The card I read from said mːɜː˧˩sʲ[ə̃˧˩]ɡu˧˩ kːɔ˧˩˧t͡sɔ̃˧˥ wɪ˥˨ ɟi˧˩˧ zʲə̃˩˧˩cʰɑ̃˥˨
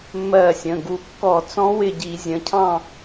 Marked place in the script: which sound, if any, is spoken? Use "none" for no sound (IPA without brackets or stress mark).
ə̃˩˧˩